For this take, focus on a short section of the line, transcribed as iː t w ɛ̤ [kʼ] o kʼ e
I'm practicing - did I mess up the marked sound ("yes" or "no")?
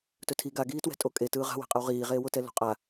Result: yes